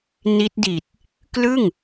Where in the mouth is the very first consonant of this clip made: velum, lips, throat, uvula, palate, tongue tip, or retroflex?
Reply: tongue tip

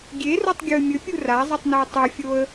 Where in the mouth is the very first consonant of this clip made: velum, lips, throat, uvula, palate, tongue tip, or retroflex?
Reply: velum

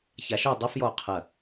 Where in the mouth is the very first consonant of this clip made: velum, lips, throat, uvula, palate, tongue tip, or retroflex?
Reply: palate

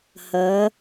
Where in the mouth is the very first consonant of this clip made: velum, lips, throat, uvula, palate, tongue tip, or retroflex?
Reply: throat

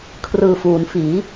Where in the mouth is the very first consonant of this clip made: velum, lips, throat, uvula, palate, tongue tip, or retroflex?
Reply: velum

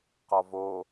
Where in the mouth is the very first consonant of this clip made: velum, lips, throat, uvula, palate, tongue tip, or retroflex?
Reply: uvula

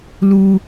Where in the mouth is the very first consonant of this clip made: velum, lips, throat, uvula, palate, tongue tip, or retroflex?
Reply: tongue tip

